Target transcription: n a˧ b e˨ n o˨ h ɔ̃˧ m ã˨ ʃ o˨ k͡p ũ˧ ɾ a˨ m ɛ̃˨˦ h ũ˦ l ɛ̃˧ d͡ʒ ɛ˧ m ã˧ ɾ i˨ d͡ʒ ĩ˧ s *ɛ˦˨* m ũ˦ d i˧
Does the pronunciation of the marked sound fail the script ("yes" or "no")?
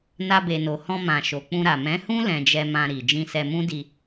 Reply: yes